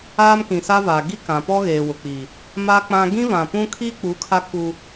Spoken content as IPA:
aː˦mkĩ˨sa˦vaː˨ ɡi˦kã˨pɔ˦ ɣeː˨wʊ˨k͡pi˨ | ma˦k͡pã˦ ɡĩ˦vã˨pũ˦ kʰi˦k͡pu˨˦ kʰa˦ ku˦

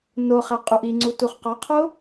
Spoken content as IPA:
no χæqʼuʔiŋ͡ǀu tuχqɒqʰo

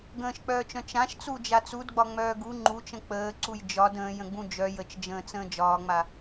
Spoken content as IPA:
ɡə̃ːʃk͡pœːt͡ʃœ̃ t͡ʃãʃt͡sud͡ʒa t͡sudɡ͡bɒŋ͡mœː ɡu ŋ͡ǃut͡ʃə̃ k͡pəːǀuj d͡ʒɒd ə̃ːjə̃ɡ͡bũ d͡ʒœ jət͡ʃd͡ʒə̃ːt͡sə̃ː d͡ʒɒːŋ͡ma

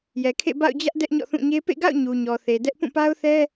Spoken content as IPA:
jɛ˨kʰḛ˦˨ ba̰˦˨ʊ̯d͡ʑä˦ʔ dɛ˦ʔɲɔ̰˦˨θũ˦˨ɲe˦ pḛ˦˨ɡa̰˦˨ʊ̯ ɲu˨ɲɔ˨θe˨dɛ˦ʔ pũ˦˨pa˦ʊ̯θɛ˦

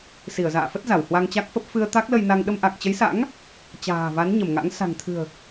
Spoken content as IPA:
si˧˩ə̯za̰ː˧˨fə˦˥t̚ za˧˩whwa˧ŋt͡ɕa˦˥k̚fə˦˥p̚ fɨ˧ə̯ t̪a˦˥k̚lə˧jna˧ŋ ɗə˧mʔa˨˩k̚t͡ɕə˨˦jsa̰˧˥ŋ | t͡ɕa̤ː˨˩va˨˦n ɲə˧˩mŋa̰˧˥ŋ sa̤˨˩ŋt̪ʰɨ̤˨˩ə̯

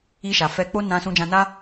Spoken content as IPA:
i˧ʃa˨fɛ˧k͡po˦ nã˧sũ˧d͡ʒã˧na˦

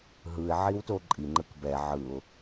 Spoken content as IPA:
ɦɯɪ̯ ʕiwtoǃʼi ŋ͡ǃɯkbɛ ʕɯʊ̯

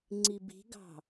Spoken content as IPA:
ŋ͡ǀibi̤ɡɑ̤

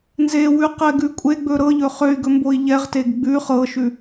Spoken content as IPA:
nzewʉqɛɡʉ kʷʼeɡ͡bɵ ɾɤʎɵ χøy̯ɡɵmboi̯ ʎɛʁteɡ ɡ͡bʉ χɤʃʉ

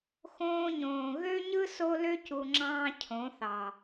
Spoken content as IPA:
xõː˧ɲõː˨ ɣø˦ɲɯ˦ so˦lø˦cu˨ ŋ͡ǁɑ̃ː˦cʰõ˨˦θɑ˨

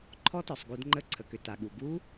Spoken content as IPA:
ǃʰɔ˦˥tɔ˩sˤ ɡu˧˩˧dŋ͡ǃə˧˥˧ǀʰə˩kʏ˩ ta˩ɠu˩ ɡu˦˥

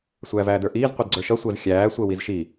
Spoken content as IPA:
sʷæːvæːdə˞ʔiːz qʷidɡ͡ǀə˞ʃʌ sʷəːzxʲæː sʷəːwizʃi

